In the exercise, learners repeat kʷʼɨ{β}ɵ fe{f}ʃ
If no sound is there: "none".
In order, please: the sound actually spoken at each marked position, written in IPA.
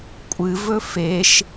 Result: v, none

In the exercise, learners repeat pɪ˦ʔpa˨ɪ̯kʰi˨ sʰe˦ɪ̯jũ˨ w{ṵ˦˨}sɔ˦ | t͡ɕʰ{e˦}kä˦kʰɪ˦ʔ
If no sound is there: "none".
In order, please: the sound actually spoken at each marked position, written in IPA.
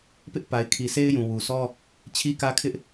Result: u˨, i˦

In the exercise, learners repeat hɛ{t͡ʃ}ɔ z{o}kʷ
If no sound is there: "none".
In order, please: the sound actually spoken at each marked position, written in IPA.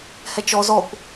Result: t͡ʃ, ɔ

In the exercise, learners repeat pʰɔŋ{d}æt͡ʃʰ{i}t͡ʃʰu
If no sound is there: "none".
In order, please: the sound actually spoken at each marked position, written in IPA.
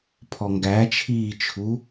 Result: ɡ, iː

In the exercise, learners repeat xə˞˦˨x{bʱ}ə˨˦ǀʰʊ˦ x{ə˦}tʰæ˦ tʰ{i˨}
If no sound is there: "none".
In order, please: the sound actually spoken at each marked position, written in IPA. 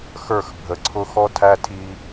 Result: bʱ, ɔ˦, i˦

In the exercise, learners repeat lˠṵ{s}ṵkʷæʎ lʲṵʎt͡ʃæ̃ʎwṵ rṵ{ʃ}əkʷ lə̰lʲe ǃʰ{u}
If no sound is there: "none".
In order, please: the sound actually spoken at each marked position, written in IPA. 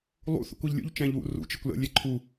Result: θ, t͡ʃ, u

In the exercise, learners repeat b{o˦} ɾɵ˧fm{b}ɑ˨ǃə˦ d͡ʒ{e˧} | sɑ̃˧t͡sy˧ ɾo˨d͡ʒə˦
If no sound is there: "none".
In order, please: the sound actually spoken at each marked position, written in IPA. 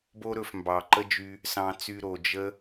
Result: o˦, b, y˧

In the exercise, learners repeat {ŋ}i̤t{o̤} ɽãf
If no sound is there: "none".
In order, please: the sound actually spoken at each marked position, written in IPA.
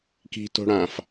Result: k, o̤

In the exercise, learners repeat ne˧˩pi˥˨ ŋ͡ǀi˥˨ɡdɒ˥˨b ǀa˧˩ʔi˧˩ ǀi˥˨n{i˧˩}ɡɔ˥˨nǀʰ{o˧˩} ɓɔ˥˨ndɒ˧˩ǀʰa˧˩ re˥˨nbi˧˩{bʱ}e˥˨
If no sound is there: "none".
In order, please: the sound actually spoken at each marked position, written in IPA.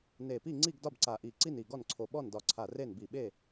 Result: i˧˩, o˧˩, ɓ

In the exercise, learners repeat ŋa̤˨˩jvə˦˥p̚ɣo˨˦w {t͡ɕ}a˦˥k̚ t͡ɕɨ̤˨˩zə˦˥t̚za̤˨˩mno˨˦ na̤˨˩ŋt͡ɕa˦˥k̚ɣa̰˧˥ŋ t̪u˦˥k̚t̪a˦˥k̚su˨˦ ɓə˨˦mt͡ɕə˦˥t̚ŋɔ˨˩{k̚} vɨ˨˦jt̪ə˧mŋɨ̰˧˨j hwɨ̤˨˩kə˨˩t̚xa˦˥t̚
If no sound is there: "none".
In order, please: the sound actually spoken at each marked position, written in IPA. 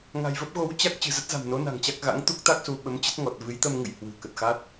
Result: t͡ɕ, t̚

